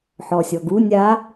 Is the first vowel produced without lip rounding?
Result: no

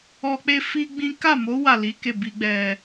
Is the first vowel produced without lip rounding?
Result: no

